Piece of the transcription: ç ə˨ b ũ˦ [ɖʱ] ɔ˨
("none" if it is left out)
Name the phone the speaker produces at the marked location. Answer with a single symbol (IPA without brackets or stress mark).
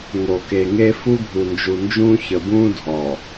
dʱ